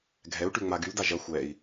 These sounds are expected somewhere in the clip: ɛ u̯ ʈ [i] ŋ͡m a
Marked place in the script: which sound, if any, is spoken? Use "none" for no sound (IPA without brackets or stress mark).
y